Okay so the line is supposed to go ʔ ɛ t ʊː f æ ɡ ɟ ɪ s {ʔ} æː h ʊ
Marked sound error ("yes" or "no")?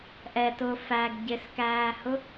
yes